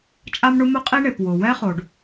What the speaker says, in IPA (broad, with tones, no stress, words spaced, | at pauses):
t͡ʃʼa˥mɳʊ˥ mʊ˥qʼi˥ɳe˩p wʊ˩ wɛ˥χo˩ɖ